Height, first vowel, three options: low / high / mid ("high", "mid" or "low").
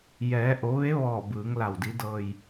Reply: mid